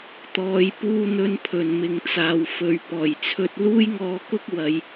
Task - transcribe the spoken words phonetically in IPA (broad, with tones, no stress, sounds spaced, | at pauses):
t̪ ɔː˨ j p uː˧ n̪ ɵ˨˧ n pʰ ɵ˨˩ n m ɪ˨ ŋ t͡s aː˨ w f ɵ˨˧ ɥ p ɔː˨˩ j t͡sʰ ɵ˧ t̚ l uː˥ j ŋ ɔː˧ k ʊ˥ k̚ w ɐ˨˧ j